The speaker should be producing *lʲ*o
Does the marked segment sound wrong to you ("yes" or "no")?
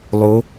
yes